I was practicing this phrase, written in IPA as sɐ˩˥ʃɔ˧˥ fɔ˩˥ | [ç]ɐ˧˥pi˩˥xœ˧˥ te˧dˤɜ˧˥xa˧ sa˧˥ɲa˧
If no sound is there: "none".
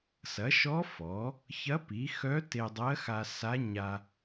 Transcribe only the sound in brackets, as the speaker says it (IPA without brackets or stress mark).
ç